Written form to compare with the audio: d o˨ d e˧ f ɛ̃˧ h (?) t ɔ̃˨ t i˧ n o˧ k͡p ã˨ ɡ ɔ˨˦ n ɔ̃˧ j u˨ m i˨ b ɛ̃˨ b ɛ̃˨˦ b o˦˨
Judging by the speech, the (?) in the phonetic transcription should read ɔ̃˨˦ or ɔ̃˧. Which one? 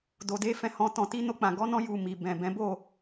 ɔ̃˧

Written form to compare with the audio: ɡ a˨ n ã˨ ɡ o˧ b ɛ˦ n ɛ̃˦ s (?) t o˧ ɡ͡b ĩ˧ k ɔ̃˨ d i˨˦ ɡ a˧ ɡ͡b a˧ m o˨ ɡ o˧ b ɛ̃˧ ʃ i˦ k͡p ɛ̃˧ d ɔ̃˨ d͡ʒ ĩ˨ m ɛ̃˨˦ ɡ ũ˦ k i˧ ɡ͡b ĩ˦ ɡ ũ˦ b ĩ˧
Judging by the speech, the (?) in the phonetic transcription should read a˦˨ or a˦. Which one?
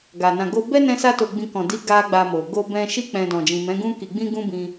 a˦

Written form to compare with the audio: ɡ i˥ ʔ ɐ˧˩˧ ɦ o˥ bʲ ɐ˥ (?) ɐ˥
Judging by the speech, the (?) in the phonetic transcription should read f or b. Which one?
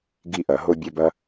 b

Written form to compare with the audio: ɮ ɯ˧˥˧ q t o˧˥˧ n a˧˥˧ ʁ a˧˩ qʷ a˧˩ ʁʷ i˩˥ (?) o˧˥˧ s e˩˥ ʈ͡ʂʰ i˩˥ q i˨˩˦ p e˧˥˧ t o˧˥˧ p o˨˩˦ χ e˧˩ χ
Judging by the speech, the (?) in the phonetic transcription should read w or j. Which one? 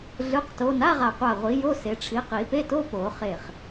j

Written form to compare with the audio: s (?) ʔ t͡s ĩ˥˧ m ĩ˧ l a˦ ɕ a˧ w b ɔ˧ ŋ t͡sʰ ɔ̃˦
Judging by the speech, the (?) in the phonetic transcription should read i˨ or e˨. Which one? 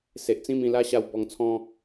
e˨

